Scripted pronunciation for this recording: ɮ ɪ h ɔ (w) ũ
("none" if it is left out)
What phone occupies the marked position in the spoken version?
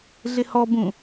b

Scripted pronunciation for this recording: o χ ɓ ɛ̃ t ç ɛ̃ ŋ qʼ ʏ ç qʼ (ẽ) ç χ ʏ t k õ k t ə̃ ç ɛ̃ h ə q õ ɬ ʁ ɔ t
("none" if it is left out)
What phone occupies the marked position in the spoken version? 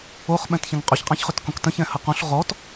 ɛ̃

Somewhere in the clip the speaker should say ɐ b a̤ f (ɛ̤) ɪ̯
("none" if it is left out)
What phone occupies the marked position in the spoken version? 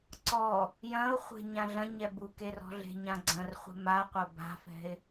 ɛ̤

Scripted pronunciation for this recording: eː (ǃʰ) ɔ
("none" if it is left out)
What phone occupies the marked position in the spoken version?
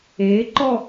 ǃ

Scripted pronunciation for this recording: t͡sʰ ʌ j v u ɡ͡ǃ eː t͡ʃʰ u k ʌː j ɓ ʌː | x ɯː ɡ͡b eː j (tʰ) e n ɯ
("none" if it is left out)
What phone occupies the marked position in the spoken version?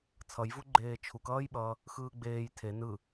tʰ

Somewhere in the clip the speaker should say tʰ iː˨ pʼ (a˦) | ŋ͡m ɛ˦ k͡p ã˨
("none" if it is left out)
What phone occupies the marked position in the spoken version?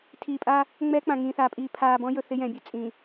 a˦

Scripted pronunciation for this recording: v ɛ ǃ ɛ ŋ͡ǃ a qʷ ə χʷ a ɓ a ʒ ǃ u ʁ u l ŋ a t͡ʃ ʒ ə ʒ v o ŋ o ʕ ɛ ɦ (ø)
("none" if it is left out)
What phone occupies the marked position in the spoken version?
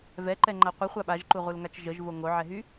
y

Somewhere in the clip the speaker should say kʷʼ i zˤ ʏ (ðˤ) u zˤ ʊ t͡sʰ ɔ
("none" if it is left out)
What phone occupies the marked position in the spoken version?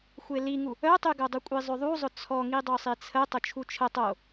ðˤ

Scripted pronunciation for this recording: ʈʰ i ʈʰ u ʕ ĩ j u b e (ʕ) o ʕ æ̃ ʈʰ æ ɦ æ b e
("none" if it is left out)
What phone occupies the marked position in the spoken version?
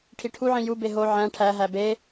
ɦ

